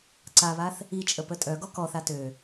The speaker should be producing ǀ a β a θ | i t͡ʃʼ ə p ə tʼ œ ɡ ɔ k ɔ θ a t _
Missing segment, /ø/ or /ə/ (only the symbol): ø